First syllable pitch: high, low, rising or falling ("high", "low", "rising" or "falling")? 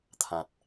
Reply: low